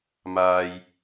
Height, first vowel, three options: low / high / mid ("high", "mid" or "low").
low